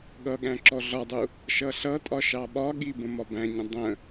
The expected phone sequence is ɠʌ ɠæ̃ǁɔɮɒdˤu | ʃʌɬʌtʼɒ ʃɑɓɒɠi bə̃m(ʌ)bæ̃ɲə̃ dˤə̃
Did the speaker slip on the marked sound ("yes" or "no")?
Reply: yes